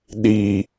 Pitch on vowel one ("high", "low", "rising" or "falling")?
low